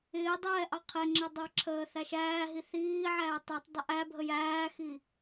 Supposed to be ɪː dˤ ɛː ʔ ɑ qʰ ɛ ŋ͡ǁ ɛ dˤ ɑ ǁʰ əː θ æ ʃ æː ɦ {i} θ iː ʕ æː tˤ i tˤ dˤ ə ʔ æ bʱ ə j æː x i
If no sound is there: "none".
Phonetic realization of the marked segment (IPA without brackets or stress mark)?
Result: i